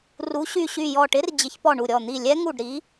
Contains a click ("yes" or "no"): no